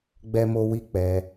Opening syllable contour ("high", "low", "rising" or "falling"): high